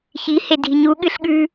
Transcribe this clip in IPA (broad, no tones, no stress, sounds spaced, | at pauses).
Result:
ç i h e dʱ i ɲ u ɠ ɨ ɬ ɠ ʉ